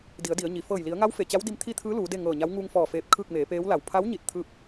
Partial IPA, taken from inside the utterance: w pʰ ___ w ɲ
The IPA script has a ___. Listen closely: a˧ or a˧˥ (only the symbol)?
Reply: a˧˥